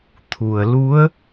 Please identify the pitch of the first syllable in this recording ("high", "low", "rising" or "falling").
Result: low